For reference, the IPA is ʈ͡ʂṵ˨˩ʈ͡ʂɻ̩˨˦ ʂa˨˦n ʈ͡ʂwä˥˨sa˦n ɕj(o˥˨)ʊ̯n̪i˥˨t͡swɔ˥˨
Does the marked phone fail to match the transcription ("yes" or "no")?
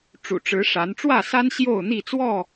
no